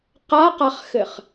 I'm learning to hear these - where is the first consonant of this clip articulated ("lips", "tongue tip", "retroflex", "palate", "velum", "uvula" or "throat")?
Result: uvula